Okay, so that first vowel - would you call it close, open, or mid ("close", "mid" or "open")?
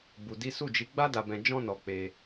close